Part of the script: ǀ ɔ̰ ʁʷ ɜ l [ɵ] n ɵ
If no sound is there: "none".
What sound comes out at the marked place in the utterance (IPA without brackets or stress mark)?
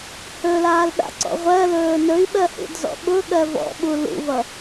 ɵː